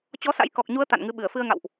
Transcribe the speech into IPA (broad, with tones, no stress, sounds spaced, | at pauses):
t͡ɕ ɔ˨˦ s a̰˧˥ j k ɔ˨˩ k̚ ɲ u˨˦ ə̯ t̪ a̰˧˨ n ŋ ɨ˨˦ ɓ ɨ˧˩ ə̯ f ɨ˧ ə̯ ŋ a̰˧˨ w ʔ